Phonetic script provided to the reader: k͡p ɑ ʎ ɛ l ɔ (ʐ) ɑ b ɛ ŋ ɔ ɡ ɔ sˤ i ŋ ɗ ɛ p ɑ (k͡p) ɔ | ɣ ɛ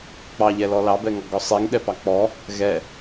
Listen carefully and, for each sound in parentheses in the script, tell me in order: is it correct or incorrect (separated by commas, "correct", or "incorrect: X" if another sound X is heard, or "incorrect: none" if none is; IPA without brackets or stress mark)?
incorrect: l, correct